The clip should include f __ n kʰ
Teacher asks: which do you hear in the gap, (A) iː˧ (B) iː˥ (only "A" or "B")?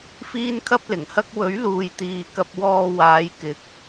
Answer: B